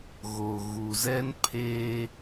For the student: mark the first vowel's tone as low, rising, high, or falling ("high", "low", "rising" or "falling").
low